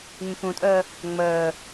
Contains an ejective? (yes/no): yes